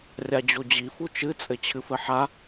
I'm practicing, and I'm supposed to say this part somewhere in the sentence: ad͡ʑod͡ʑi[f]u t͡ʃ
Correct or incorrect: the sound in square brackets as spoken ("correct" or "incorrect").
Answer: correct